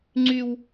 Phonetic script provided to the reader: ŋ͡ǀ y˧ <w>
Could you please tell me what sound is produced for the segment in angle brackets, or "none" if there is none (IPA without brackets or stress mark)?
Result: w